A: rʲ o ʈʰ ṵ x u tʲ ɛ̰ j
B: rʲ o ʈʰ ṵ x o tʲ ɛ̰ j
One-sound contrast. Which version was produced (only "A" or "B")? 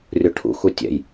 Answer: A